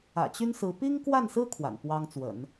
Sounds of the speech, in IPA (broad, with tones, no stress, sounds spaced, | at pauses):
ä̰˨˩ t͡ɕ y˥ n s ɹ̩˧˥ p i˥ ŋ k w a˥˩ n s ɹ̩˥ kʰ w a̰˨˩ n p w ɑ˥ ŋ t͡s w ə̰˨˩˦ n